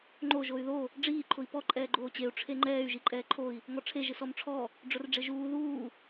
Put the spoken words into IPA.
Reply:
ŋ͡ǃ o ʒ o y̯ ð o | ɖ͡ʐ iː ǃʰ ʊ i̯ p ɔ ǃʼ ɛː ɡ͡ǃ oː t͡ɕ e u̯ ʈ͡ʂʰ e ŋ͡ǃ ɛː y̯ ʒ i ǃʼ ɛː ǃʰ o i̯ | ŋ ɔ ʈ͡ʂʰ e ʒ ɪ s ɔ m ʈ͡ʂʰ ɔ | ɖ͡ʐ ʊ r ɖ͡ʐ ɪ ʒ uː ð uː

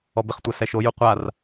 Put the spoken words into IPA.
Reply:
ɔ b ɪ χ tʷ a s ɛ ʃ o j u qʷ a r

